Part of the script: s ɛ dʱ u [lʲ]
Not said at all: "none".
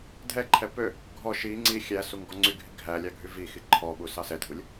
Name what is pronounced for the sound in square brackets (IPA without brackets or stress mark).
lʲ